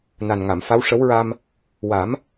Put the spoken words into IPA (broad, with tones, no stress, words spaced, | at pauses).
na˨˩n ŋa˨˩˨mfa˧˥w ʂə˧˥wɹa˧m | wa˨˩˦m